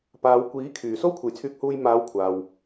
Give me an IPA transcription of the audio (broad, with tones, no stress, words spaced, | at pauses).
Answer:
paː˨˧w kʷiː˨˥kʰyː˨˩ so˥wkʷʰe˨jt͡sʰyː˧k̚huː˧j maː˨˧wkʷʰaː˨w